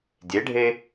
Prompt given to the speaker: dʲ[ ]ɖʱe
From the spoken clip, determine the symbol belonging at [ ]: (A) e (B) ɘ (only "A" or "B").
A